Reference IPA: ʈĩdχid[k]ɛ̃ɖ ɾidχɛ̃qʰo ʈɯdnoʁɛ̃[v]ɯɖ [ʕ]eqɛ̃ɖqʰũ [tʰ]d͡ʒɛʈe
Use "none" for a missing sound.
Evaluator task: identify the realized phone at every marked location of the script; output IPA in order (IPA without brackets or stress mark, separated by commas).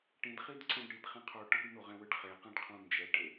ǀ, w, χ, n